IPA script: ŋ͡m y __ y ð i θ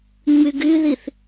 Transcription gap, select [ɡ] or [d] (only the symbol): ɡ